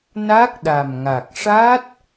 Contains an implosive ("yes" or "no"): yes